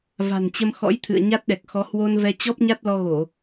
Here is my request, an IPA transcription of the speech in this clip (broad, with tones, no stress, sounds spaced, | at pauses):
v a̤˨˩ n t͡ɕ ə˧ m x ɔ̰˧˥ j t̪ʰ ɨ̰˧˨ ə̯ ɲ a˦˥ t̚ ɗ ɛ˨˩ k̚ x ɔ˨˦ h w o˧ n v ɛ˧ t͡ɕ ɔ˦˥ p̚ ɲ a˦˥ t̚ l ɔ˧ ɣ o˧˩˨